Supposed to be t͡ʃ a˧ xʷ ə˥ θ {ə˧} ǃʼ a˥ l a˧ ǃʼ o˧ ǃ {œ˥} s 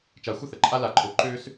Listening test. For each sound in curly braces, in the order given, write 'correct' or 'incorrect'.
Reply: incorrect, incorrect

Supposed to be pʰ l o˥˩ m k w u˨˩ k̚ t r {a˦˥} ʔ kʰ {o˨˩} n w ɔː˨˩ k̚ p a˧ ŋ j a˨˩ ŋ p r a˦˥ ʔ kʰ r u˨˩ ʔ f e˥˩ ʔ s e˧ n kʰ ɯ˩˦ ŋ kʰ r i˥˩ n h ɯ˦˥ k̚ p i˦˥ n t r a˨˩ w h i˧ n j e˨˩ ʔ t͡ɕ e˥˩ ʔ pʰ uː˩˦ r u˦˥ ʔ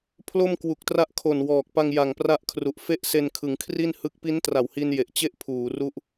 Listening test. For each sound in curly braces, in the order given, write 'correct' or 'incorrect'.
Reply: correct, correct

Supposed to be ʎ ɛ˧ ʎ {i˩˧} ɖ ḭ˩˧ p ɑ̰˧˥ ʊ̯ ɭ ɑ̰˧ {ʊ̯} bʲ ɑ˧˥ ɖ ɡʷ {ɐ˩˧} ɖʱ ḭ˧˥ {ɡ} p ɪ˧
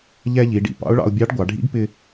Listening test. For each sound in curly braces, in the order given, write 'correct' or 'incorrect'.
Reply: correct, correct, incorrect, correct

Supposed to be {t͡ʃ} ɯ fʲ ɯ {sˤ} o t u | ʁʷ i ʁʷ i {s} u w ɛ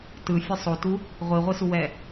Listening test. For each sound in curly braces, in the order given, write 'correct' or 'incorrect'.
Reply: incorrect, correct, correct

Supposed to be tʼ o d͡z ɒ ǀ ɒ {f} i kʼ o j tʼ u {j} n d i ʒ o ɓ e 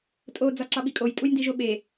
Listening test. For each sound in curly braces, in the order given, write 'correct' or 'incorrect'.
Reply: incorrect, correct

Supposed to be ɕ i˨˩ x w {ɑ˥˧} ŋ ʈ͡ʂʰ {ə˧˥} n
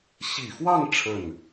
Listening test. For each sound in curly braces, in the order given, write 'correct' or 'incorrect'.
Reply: correct, incorrect

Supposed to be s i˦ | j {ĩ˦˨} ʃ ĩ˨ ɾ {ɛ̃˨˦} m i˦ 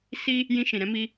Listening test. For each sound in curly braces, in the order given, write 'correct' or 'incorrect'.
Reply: incorrect, incorrect

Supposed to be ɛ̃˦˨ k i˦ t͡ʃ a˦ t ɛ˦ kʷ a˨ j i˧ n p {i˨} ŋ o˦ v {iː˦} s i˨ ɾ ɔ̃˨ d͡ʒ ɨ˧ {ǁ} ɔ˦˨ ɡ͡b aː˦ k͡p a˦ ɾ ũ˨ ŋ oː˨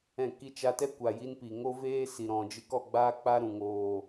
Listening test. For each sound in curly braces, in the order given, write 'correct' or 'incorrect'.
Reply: correct, incorrect, incorrect

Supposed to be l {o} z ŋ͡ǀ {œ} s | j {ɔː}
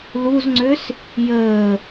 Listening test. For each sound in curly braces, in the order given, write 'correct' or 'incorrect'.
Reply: incorrect, incorrect, incorrect

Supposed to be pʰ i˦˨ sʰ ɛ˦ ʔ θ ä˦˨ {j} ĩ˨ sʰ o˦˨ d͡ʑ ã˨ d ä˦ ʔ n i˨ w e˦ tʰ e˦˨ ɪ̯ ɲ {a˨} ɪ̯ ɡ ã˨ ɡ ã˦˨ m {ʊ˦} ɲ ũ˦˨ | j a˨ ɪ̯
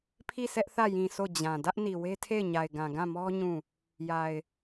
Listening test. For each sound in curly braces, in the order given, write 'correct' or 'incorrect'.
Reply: correct, correct, incorrect

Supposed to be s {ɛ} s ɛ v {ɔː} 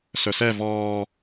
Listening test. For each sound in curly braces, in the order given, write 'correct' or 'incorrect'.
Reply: incorrect, correct

